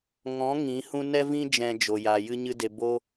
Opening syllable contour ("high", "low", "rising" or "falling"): rising